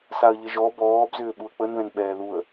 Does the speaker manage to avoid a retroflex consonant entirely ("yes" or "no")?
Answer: yes